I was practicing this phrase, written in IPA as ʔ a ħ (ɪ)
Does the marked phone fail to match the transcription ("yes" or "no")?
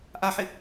no